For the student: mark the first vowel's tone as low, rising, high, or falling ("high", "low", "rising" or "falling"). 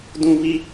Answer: high